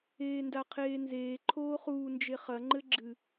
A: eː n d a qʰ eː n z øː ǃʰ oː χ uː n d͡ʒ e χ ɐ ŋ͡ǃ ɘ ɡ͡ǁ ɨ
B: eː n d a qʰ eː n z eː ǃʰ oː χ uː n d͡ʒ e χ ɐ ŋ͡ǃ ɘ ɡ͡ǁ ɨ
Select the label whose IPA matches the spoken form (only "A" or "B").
B